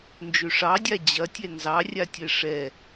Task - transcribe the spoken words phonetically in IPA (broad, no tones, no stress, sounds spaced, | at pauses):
n d͡ʒ ø ʂ ɑ dʲ a d͡ʑ ɐ tʲ ɛ n z ɑ rʲ a tʲ ɛ ʂ ɛ